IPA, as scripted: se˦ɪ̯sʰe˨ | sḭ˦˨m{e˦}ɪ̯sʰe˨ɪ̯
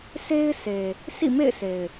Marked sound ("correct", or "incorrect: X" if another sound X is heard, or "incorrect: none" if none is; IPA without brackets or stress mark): incorrect: ḛ˦˨